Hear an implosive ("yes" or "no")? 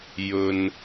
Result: no